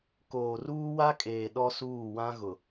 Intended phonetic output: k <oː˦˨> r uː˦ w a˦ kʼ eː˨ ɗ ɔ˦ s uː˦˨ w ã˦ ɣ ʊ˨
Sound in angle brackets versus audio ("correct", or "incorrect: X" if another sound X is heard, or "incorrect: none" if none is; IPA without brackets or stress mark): incorrect: oː˨